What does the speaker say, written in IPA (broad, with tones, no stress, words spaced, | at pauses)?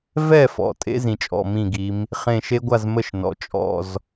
vɛ˥˨fɔ̰˩˧ tʼḛ˦˥zĩ˩t͡ʃʼɔ̰˩˧˩mĩ˧˩ ɡi˩˧m | χẽ˧˩ʃe˦˥ɡʷa˥˨zmə˥˨ʃ nɔ̰˩˧t͡ʃʼɔ̰˥˨z